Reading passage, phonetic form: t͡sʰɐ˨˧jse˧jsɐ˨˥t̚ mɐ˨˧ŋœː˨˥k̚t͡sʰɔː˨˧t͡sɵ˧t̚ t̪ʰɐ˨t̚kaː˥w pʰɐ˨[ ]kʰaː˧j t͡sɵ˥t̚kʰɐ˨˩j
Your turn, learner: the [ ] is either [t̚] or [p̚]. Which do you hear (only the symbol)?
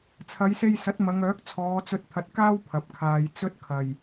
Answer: p̚